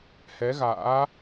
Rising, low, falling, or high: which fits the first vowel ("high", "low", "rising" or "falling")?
rising